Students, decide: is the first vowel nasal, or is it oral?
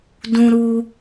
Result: nasal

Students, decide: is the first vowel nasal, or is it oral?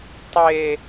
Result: oral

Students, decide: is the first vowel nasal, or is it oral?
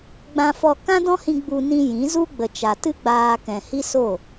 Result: nasal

